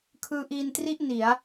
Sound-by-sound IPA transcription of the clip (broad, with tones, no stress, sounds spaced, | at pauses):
kʰ ɯː˧ ʔ iː˧ n t r i˥˩ ʔ n i˩˦ a̯